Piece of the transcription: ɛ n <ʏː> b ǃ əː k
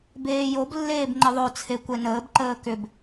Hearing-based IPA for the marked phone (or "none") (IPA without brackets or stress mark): əː